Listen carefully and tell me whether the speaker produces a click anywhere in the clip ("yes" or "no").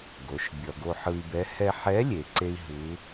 yes